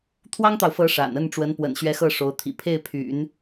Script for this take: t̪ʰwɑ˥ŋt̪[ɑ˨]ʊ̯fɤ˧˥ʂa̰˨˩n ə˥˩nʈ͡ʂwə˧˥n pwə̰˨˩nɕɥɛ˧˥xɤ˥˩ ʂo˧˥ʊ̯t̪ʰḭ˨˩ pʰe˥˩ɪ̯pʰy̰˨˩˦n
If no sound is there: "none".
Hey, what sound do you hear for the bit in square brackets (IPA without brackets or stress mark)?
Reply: ɑ˨